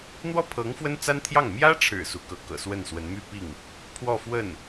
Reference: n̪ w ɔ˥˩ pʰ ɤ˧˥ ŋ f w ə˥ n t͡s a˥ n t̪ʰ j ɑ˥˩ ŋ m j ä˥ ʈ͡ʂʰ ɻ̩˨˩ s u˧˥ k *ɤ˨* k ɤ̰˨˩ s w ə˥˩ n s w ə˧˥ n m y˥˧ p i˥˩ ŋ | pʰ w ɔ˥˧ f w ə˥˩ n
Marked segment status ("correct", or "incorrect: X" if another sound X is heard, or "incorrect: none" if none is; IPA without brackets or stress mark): incorrect: ɤ˧˥